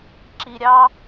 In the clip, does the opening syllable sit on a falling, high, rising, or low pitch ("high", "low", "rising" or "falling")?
low